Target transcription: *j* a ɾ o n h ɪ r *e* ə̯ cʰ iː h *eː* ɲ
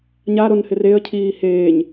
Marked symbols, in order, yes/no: no, yes, yes

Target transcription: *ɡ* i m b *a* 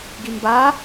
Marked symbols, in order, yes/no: yes, yes

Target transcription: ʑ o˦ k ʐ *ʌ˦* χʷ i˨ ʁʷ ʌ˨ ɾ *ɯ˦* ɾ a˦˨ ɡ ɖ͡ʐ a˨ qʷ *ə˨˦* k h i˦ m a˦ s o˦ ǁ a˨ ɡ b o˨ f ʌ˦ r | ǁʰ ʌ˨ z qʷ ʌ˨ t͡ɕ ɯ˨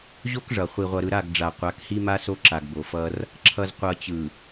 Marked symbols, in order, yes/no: no, no, no

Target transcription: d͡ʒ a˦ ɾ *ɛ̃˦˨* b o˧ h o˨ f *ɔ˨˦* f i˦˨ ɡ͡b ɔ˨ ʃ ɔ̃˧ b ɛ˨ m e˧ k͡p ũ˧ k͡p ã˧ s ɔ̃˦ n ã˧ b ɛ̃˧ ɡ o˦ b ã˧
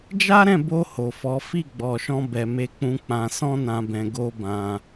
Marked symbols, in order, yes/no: yes, yes

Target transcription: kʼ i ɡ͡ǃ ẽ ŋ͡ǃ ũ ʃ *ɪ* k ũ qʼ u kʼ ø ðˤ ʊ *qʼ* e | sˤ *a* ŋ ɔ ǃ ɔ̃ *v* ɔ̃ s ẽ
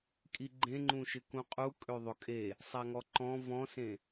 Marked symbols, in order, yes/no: yes, no, yes, yes

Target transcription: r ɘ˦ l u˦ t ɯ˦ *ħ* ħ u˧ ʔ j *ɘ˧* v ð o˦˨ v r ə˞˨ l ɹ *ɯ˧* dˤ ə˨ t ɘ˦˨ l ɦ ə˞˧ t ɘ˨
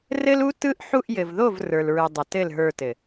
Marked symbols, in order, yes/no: no, no, no

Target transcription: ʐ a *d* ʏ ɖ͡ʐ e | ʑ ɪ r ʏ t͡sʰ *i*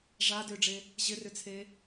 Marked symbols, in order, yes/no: yes, no

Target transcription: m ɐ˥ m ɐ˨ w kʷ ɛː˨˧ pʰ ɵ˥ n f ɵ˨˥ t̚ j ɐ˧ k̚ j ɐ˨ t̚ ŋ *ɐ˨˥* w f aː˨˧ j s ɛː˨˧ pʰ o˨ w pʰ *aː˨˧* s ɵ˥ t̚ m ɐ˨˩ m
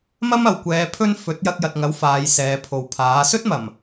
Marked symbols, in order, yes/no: yes, no

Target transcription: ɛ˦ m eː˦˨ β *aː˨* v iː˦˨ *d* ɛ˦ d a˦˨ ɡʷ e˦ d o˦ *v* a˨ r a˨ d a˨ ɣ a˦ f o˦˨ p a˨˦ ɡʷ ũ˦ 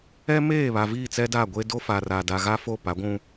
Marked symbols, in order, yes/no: no, no, no

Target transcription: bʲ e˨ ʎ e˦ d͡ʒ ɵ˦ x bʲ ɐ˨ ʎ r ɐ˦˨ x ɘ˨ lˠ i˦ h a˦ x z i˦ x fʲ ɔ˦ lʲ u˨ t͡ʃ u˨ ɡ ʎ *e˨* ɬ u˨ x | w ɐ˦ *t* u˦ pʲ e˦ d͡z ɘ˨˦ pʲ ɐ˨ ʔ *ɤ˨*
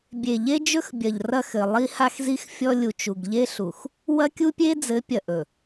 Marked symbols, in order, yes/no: no, no, no

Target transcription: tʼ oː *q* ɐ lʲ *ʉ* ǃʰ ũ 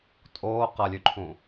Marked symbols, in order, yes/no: yes, yes

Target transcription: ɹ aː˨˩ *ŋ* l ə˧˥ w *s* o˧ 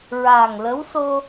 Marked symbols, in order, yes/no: yes, yes

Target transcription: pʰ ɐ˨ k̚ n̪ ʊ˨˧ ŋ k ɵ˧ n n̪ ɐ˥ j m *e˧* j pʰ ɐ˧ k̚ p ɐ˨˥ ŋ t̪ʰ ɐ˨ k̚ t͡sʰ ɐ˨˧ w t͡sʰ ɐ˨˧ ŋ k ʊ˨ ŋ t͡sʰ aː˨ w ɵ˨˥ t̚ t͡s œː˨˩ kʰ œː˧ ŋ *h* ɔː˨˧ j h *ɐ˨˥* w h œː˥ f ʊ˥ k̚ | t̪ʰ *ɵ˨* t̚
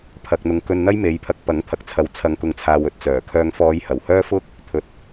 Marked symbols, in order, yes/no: no, no, no, yes

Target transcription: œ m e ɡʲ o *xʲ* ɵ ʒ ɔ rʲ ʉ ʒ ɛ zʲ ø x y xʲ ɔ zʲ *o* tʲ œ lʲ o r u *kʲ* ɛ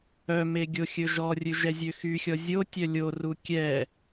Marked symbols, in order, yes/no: yes, yes, yes

